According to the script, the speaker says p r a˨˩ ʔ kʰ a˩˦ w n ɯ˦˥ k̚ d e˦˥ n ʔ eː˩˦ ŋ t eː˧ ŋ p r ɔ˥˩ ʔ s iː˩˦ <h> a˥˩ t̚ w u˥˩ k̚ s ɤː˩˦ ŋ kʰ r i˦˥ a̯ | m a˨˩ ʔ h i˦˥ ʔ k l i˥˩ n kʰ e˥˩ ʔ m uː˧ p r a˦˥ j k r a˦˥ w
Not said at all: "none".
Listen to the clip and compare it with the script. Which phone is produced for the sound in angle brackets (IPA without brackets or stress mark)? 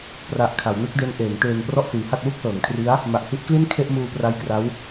h